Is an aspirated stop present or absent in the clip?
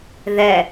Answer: absent